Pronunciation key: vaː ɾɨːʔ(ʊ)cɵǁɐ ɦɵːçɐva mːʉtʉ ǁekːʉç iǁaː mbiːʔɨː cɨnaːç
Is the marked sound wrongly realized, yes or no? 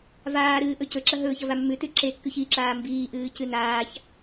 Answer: yes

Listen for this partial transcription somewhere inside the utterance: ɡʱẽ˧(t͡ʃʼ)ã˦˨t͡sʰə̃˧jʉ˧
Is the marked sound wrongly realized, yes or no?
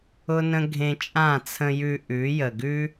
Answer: no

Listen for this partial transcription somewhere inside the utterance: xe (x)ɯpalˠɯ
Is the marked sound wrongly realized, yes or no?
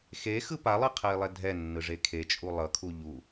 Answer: no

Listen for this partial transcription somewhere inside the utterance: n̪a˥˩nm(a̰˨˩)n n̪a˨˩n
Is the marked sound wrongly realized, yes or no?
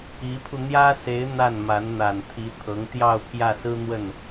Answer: yes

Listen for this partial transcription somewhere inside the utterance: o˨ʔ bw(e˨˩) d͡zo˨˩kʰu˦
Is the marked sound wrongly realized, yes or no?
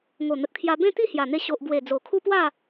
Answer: no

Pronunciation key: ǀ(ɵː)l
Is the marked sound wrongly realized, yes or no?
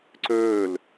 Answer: no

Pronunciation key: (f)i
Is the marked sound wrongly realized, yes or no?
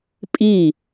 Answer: yes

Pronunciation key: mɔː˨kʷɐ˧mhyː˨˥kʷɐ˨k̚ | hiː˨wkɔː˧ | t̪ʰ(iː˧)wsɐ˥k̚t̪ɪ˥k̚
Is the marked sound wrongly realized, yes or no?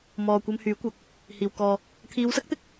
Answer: yes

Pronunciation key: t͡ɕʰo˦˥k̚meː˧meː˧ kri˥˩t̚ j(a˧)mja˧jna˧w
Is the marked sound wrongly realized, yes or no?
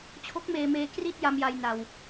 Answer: no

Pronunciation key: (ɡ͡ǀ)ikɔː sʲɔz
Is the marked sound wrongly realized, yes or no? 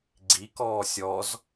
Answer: no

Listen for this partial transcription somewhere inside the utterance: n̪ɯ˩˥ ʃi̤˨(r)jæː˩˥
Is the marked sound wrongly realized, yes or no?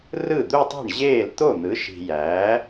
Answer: yes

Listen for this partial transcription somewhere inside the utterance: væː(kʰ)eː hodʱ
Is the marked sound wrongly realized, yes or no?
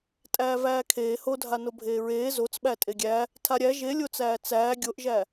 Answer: no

